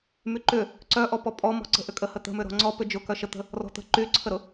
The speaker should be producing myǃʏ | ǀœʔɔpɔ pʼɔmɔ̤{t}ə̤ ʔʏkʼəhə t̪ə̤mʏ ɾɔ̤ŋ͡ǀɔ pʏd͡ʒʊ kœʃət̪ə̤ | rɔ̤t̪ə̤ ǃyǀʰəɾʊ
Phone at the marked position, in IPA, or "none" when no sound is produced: ǀ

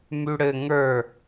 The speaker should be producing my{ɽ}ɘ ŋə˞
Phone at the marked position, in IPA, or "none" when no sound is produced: ɽ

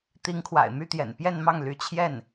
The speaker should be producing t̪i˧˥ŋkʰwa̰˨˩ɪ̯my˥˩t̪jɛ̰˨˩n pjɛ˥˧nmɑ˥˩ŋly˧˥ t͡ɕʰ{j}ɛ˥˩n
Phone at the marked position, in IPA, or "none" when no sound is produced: j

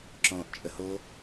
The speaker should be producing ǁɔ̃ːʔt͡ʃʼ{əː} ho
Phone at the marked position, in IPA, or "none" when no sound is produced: ə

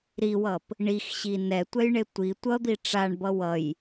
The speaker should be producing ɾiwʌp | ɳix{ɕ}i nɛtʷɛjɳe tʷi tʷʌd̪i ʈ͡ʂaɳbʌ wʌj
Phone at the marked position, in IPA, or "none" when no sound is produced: ɕ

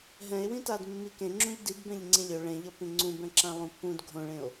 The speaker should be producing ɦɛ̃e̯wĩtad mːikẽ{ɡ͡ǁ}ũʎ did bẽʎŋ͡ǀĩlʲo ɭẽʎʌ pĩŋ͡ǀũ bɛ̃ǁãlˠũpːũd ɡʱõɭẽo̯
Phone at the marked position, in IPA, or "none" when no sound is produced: ŋ͡ǁ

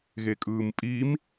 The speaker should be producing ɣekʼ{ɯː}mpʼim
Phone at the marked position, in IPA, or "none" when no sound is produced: ɯː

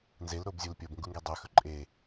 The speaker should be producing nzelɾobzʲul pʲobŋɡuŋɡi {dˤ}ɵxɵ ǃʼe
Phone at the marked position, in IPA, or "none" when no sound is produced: dˤ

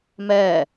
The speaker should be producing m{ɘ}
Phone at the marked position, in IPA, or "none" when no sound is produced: ɛ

